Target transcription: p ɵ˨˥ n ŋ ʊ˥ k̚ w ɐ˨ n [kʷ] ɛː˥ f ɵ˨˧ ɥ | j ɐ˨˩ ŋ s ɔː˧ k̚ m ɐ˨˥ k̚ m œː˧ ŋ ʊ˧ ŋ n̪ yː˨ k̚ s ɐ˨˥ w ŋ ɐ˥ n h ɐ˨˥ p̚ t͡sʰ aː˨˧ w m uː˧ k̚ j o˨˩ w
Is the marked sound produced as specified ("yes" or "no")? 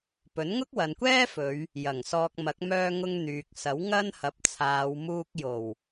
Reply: yes